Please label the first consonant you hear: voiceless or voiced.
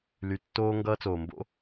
voiced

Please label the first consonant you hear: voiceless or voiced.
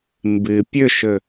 voiced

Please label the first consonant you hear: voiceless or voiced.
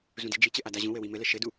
voiced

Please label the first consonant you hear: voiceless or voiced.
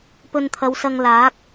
voiceless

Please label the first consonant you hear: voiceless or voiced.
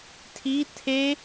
voiceless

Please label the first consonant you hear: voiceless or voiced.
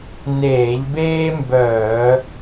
voiced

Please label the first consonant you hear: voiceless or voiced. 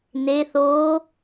voiced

